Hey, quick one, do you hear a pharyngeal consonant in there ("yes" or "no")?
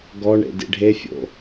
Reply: no